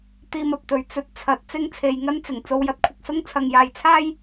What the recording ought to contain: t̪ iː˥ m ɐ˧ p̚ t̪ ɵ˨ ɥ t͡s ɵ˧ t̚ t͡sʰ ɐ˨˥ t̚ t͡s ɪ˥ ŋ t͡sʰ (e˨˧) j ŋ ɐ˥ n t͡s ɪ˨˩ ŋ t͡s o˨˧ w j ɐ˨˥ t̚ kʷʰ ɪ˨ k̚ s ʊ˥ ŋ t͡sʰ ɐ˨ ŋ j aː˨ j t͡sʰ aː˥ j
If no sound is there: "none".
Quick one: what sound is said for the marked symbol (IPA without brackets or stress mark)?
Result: e˨˧